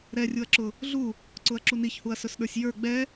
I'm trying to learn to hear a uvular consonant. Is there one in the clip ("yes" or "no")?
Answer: no